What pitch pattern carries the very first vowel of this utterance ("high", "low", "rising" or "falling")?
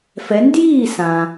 rising